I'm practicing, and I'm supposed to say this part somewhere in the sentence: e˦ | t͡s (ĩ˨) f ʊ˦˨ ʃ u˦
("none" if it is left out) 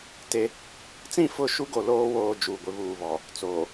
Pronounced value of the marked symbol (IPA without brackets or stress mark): ĩ˦˨